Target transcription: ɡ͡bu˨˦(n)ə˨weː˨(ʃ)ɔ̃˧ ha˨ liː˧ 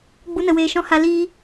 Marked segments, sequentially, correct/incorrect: correct, correct

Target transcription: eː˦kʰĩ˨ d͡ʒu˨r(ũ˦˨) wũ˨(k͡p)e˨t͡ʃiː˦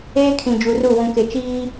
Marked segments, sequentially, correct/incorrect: incorrect: u˦˨, incorrect: k

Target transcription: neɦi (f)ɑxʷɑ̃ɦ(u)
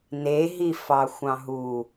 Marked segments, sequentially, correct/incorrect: correct, correct

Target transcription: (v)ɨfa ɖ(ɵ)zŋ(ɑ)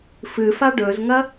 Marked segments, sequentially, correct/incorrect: incorrect: f, correct, incorrect: ɐ

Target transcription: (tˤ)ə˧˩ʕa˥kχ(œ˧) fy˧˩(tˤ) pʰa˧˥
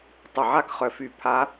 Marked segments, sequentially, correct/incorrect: correct, correct, incorrect: none

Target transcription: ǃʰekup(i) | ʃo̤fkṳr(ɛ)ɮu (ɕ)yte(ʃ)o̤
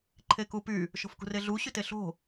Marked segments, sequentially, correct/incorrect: incorrect: y, incorrect: e, correct, incorrect: ɬ

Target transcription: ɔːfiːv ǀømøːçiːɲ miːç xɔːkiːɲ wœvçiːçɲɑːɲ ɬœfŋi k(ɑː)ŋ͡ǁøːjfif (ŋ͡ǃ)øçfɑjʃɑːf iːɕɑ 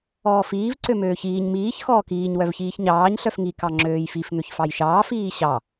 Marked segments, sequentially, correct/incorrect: incorrect: ɑ, incorrect: ŋ

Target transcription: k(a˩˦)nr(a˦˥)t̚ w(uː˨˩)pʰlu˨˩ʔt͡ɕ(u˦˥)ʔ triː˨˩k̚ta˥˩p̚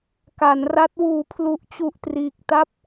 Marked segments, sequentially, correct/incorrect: correct, correct, incorrect: uː˩˦, incorrect: u˨˩

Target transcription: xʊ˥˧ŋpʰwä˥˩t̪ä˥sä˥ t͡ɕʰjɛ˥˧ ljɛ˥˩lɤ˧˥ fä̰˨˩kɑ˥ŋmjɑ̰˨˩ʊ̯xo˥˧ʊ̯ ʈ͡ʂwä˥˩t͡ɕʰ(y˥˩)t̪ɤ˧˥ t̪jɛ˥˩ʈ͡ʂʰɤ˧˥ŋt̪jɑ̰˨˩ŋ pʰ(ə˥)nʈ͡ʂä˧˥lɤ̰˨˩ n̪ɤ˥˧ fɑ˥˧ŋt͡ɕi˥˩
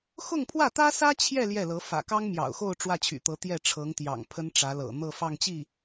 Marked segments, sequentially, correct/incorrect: incorrect: y̰˨˩, correct

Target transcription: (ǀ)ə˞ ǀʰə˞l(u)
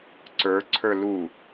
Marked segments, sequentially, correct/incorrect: correct, correct

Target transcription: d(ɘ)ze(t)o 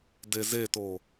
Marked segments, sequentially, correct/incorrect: incorrect: e, correct

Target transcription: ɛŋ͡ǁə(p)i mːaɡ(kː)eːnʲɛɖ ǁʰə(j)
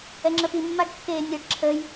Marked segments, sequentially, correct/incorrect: correct, correct, correct

